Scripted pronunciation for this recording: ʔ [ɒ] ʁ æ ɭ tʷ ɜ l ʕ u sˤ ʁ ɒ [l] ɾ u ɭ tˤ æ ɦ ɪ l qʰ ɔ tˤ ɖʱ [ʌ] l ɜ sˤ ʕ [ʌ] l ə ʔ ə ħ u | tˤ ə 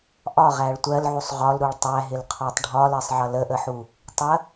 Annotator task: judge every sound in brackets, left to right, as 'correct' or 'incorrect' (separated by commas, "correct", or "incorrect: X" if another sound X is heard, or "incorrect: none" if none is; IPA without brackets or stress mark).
correct, correct, incorrect: ɒ, correct